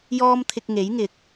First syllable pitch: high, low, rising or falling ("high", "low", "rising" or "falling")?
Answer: high